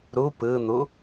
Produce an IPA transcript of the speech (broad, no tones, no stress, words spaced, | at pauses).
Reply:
ɾu pɯn̪u